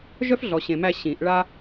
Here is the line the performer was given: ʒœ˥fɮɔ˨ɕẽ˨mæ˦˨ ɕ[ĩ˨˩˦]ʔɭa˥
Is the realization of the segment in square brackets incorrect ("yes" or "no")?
no